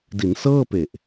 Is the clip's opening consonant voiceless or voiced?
voiced